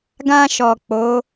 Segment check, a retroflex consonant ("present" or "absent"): absent